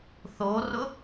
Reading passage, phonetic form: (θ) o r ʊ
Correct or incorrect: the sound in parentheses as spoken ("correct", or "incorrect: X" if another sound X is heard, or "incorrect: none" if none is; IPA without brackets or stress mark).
correct